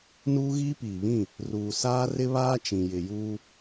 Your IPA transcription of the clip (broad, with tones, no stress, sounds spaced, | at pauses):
n uː˦ ɣ iː˦ p iː˨ β ĩ˦˨ | r uː˨ s aː˦ r ɪ˦ β aː˦ t͡ʃ ĩ˨ j ɪ˨ j uː˦